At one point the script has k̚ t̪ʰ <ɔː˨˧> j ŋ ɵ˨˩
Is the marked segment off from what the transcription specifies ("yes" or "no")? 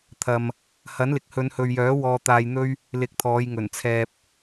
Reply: no